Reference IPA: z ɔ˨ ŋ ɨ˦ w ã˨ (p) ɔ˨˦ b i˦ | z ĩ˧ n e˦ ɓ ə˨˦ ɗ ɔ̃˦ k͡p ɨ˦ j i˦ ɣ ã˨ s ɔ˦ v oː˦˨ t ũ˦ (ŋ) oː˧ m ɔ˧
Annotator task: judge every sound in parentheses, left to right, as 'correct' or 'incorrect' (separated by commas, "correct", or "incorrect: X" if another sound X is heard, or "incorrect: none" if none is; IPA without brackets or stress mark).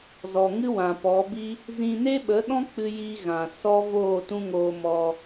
correct, correct